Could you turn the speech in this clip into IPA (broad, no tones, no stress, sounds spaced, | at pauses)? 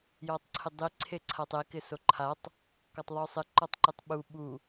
j ɔ tˤ ǀʰ ɪ dˤ i ǀʰ e ǀʰ a tˤ e k ɪ s o ǃʰ a tˤ | k ɔ tˤ ðˤ o sˤ ɪ ǃ ɔ tˤ ǃ e tˤ ɓ u ɓ u